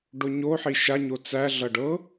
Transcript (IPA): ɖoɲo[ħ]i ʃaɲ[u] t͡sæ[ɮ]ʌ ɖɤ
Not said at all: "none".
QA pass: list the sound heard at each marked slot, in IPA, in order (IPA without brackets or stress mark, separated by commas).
ħ, o, ɮ